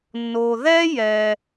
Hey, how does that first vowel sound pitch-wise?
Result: low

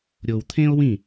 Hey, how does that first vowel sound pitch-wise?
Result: low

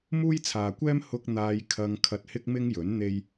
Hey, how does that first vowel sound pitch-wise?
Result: high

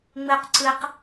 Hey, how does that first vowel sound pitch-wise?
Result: high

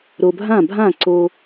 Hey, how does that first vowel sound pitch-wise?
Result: low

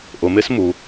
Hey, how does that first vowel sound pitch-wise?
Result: low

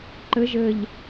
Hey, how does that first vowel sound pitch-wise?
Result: rising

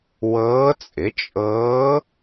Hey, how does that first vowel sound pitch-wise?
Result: rising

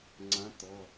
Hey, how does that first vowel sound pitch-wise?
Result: rising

